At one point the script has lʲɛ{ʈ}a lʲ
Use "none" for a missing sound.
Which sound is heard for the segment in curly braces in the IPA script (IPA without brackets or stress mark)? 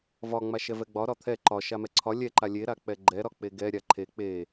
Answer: ǃ